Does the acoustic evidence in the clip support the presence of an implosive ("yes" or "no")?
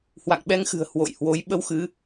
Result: yes